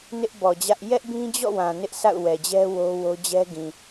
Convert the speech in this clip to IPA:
n ɪ˦ ʔ b ɔ˨ d͡ʑ ä˦ ʔ j ɛ˦ ʔ b ĩ˦ d͡ʑ ɔ̰˦˨ w ã˨ n ɪ˦ ʔ sʰ a̰˦˨ ʊ̯ w ɛ˨ d͡ʑ ɛ˦ w o˦ w o˦ d͡ʑ ɛ˦ ɡ ĩ˨

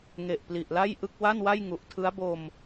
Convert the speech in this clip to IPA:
ŋ e˨˩ ʔ p l i˨˩ ʔ l a˥˩ j ʔ ɯ˥˩ k̚ w a˥˩ n w a˥˩ j ŋ u˨˩ ʔ tʰ ɯ˦˥ a̯ b o˧ m

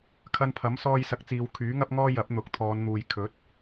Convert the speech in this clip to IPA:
kʰ ɐ˧ n pʰ ɐ˨˥ m s ɔː˧ j s ɐ˨˥ k̚ t͡s iː˨ w kʰ yː˨˥ ŋ ɐ˥ p̚ ŋ ɔː˥ j ɐ˨˥ p̚ n̪ ʊ˨˥ k̚ t̪ʰ ɔː˨˧ n n̪ uː˨ j kʰ ɵ˨˥ t̚

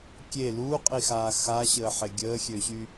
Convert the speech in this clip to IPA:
kʲ e l uː qʼ i x aː x a ɕ əː ħ e ɡʲ əː xʲ ø ɕ y

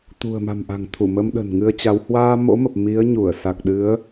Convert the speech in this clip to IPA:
t̪ ṳ˨˩ ə̯ m a̤˨˩ m ʔ a̤˨˩ ŋ t̪ʰ u˧˩ m ə˧ m ɗ ə̤˨˩ n ŋ ɨ˧ ə̯ t͡ɕ a˨˦ w h w aː˧ m o̰˧˥ m ə˨˩ p̚ m i˨˦ ə̯ ɲ u˧˩ ə̯ s a˨˩ k̚ ɗ ɨ˨˦ ə̯

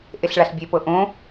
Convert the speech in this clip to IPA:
ʔ e ɬ ɭ a ɬ bʲ e p ɤ ʔ õ

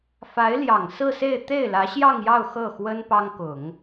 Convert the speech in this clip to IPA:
f a˧˥ ɪ̯ l j ɑ˨˩ ŋ s ɹ̩˥˧ s e˥˧ ɪ̯ t̪ e˥˩ ɪ̯ l ä˧˥ ɕ j ɑ˥˧ ŋ j ɑ˥˧ ʊ̯ x ɤ˥˩ x w ə˥ n p ɑ˥ ŋ k ʊ˨˩˦ ŋ

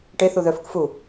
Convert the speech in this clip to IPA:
ʈ e θ u ð œ f ɯ k f u

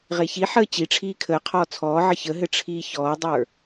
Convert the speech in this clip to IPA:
ʁ e ç i ħ əː t͡ɕ i ʈ͡ʂʰ iː kʰ əː qʰ ɔː t͡sʰ ɔː ʕ ə ç ə ɦ ɘ ʈ͡ʂʰ iː ç ɔː dˤ ə˞

